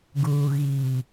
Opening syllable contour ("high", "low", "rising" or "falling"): low